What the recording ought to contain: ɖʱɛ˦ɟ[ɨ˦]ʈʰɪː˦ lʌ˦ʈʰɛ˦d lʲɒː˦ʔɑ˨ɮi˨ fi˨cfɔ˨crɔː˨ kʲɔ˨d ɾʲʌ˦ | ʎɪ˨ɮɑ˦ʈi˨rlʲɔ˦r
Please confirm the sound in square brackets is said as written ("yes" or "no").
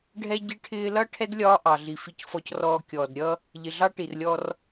no